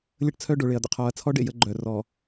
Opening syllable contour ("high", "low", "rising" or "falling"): high